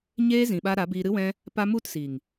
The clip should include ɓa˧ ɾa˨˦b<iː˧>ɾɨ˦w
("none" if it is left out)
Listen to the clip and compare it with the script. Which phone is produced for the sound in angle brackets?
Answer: iː˧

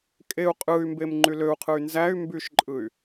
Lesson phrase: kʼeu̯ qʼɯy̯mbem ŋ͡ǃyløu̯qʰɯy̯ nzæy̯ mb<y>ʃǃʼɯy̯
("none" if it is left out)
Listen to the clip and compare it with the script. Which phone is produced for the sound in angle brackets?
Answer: y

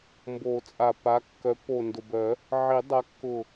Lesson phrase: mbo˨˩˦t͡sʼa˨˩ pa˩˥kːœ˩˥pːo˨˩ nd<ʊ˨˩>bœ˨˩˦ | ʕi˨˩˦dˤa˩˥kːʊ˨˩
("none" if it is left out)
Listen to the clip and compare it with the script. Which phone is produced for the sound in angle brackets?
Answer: ʊ˨˩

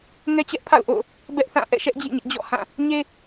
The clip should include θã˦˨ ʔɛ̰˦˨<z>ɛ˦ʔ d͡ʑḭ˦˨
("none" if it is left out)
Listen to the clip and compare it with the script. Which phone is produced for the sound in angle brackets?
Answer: ʃ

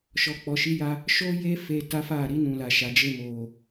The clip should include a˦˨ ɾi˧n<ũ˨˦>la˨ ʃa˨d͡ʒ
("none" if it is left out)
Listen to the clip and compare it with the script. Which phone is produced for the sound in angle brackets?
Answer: ũ˨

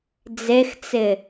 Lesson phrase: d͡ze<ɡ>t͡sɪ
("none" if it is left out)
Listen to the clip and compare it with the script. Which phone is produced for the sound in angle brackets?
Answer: x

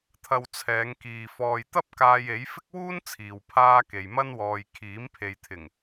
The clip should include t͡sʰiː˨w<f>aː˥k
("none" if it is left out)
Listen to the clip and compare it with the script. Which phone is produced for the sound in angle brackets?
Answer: pʰ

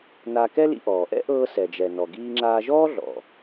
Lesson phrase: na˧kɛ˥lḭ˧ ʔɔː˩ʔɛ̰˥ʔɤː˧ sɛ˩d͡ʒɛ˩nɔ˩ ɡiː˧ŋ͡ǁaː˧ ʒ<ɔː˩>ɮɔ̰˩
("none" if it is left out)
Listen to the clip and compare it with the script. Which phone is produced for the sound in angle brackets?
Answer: ɔː˥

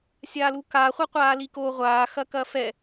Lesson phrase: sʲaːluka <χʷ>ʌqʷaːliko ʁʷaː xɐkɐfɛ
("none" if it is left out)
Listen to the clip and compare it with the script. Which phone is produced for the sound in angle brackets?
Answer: χʷ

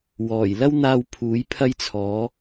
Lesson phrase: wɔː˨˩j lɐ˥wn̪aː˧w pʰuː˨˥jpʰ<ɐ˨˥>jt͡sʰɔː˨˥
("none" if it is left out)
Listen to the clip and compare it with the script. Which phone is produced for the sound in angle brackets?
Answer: ɐ˥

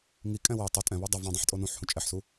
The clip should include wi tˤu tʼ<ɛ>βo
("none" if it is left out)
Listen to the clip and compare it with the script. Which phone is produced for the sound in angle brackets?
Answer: ɛ̃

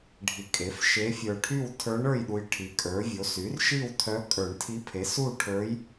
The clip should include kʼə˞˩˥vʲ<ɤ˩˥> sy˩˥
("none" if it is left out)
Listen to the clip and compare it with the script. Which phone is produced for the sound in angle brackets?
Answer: o˩˥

